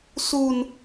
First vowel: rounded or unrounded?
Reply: rounded